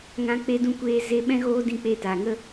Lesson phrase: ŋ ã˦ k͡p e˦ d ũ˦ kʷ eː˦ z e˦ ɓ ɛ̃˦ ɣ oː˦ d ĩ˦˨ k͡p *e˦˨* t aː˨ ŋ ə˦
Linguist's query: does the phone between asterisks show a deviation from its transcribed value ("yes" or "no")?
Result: no